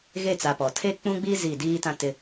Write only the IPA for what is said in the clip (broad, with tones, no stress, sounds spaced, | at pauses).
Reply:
ɣ e˦˨ t͡s a˨ p ɔ˨ tʰ e˦ k͡p ũ˦ ɡ͡b i˦ z i˦˨ d iː˦ t ã˦ t ɪ˦